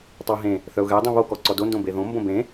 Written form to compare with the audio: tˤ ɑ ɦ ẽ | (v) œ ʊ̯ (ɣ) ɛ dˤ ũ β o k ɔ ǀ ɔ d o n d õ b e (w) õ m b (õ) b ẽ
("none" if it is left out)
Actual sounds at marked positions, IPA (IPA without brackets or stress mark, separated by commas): θ, ɣ, ð, õ